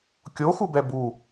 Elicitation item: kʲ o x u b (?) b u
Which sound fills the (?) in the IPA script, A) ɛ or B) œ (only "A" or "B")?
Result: A